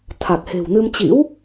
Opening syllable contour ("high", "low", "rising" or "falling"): low